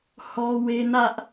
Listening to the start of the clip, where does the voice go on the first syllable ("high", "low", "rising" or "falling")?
high